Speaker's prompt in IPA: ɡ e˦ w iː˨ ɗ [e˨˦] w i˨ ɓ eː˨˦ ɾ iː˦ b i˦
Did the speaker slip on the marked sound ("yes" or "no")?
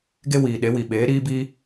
no